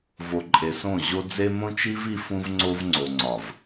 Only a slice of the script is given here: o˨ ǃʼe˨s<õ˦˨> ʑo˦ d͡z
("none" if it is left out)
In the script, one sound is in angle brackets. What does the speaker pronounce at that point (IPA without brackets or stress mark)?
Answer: õ˦˨